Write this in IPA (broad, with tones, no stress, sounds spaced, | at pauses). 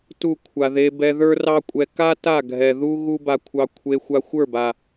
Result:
t u˦˨ kʷʰ a˨ ð e˧ b ɛ˧ ð ə˞˦ r ɑ˦ kʷʼ ɛ˧ k a˦ t a˦˨ ɡʱ ɛ˨ ð u˦ ɣ u˦ b a˧ kʷʰ ɑ˧ kʷʰ e˧ xʷ a˧ xʷ ə˞˦˨ b a˨